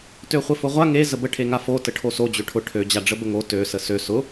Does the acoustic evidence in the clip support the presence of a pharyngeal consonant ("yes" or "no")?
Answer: no